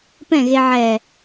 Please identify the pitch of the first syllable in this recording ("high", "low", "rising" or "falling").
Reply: falling